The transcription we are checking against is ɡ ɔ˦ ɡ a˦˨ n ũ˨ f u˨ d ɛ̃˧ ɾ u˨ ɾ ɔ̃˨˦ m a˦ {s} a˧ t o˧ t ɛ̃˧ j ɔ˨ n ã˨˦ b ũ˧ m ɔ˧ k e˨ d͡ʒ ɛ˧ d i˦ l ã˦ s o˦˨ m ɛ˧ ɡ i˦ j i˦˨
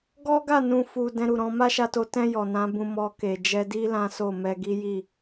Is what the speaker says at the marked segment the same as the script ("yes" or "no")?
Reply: no